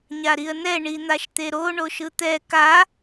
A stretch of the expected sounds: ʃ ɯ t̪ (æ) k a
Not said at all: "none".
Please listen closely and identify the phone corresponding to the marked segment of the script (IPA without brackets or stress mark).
ɛ